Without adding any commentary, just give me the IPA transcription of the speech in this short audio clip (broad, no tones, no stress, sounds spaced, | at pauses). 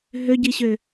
ɦ ø ɟ i ɕ ø